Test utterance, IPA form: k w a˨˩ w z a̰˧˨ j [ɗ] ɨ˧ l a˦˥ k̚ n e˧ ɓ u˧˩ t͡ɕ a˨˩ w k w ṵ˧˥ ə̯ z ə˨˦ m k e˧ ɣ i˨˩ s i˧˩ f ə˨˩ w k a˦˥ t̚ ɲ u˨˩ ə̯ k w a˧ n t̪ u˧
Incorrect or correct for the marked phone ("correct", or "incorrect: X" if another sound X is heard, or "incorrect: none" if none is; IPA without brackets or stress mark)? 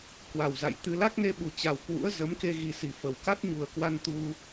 incorrect: t̪